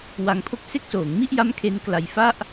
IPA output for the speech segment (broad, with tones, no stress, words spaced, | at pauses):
wa˧ŋpʰo˥˩k̚ se˦˥k̚soː˩˦ŋmi˥˩ʔja˦˥m kʰe˦˥nkla˧j fa˥˩ʔ